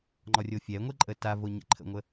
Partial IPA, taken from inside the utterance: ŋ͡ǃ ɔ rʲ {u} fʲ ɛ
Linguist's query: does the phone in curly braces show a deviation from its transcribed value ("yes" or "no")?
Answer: yes